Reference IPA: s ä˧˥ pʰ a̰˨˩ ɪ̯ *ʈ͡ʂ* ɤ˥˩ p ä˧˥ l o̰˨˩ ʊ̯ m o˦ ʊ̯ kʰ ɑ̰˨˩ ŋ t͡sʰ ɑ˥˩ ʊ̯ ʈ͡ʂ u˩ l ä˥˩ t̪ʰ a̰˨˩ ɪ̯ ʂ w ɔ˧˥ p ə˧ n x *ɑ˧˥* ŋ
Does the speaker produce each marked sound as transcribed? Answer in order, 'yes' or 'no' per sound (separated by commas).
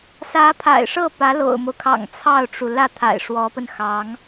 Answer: no, yes